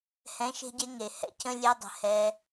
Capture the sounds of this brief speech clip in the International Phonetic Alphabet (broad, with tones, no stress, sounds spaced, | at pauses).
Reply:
h ɛ̃˨˦ ʃ e̤˧ ɟ e˧ ŋ e˨ h ɛ̰˦ cʰ ə̃˦ lʲ ɛ˦ dˤ ə̤˧ h ɛː˧